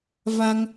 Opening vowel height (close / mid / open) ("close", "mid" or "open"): open